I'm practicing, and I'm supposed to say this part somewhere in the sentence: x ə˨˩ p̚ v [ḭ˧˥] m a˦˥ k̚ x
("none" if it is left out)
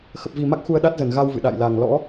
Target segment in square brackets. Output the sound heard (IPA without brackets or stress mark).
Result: i˨˩